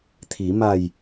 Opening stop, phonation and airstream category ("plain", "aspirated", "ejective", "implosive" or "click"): aspirated